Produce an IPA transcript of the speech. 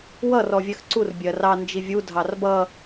w ʌ r ɔ vʲ ɜ x ǀ u r bʲ ɜ r ɑ n d͡ʒ i vʲ u dʱ ɑ r b ʌ

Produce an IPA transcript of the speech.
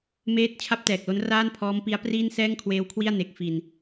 m eː˦˥ t̚ t͡ɕʰ a˥˩ p̚ t ɛː˨˩ k̚ l o˦˥ n r aː˥˩ n pʰ ɔː˦˥ m p i˦˥ a̯ p r iː˥˩ n s ɛː˥˩ ŋ kʰ w eː˦˥ w kʰ w i˥˩ a̯ n e˦˥ k̚ f i˧ n

